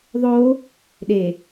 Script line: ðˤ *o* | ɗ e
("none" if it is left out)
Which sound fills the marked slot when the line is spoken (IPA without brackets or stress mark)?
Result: o